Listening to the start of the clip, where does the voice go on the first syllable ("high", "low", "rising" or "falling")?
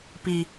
low